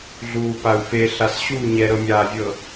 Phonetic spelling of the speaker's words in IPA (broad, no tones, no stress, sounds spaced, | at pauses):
ɮ uː p a u̯ f e ɬ a s ɕ u ɲ ɛ ɾ ɤ mʲ aː vʲ ɤ